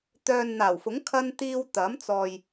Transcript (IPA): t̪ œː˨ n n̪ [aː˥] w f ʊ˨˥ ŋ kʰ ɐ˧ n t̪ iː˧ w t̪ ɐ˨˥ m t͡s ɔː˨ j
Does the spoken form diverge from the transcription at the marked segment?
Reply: yes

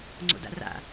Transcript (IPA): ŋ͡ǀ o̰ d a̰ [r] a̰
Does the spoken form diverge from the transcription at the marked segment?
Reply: no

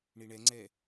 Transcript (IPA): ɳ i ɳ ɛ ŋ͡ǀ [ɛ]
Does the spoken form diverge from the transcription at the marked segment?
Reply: no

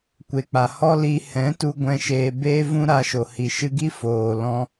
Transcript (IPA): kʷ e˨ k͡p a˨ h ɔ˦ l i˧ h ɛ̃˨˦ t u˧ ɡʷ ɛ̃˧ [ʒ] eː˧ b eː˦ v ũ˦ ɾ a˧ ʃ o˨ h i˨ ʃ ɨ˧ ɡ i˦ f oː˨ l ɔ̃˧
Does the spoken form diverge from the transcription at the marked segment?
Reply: yes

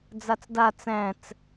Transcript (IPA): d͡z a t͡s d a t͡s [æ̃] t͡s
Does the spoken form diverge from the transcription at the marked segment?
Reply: no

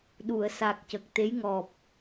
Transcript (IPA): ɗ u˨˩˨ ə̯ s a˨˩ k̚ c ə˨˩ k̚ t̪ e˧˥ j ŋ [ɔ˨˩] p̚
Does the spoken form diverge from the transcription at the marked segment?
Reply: no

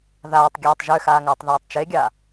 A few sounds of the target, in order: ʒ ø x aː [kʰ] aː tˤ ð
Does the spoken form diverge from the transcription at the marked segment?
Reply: yes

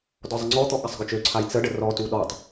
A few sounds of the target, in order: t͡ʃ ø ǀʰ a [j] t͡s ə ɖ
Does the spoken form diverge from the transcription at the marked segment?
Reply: no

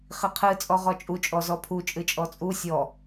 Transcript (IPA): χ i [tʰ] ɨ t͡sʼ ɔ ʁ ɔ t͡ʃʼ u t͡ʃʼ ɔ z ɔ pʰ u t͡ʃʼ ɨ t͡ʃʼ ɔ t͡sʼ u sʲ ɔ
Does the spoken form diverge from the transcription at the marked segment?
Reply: yes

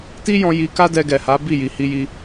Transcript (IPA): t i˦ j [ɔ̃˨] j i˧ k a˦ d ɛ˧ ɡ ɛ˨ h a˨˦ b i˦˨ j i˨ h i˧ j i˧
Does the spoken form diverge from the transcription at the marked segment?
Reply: yes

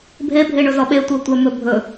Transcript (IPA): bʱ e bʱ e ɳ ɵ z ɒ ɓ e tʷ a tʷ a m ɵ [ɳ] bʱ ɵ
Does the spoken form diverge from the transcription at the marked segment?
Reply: yes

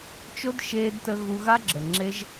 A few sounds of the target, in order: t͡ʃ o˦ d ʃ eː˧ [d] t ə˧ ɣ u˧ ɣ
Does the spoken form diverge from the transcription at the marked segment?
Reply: no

